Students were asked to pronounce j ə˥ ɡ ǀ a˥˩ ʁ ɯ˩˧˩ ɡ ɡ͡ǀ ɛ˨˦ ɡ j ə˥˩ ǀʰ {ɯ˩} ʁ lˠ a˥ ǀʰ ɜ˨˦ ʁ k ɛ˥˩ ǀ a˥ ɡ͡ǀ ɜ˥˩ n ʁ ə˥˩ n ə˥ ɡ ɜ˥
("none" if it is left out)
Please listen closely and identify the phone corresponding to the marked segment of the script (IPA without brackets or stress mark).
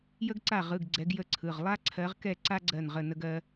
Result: ɯ˩˧˩